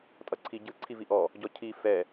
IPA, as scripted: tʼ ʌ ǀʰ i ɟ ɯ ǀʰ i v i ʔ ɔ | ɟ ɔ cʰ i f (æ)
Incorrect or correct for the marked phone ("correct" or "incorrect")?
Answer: incorrect